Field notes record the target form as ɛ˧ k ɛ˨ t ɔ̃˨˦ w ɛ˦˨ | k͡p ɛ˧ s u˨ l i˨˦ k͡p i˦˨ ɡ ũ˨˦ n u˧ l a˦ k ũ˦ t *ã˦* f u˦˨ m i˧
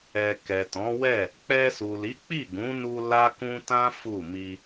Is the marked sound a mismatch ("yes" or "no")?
no